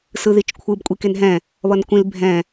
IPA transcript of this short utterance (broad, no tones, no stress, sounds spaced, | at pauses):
s ɯ ð i t͡ʃ kʷʰ ɯ b kʷʼ i k e n ɦ ɛ̃ | β ʌ n kʷ ĩ l bʱ ɛ̃